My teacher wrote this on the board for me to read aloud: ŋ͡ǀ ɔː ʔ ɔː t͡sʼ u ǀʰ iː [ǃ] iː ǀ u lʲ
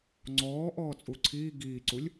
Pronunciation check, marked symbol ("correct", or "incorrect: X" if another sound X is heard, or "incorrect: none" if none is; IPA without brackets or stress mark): incorrect: ɡ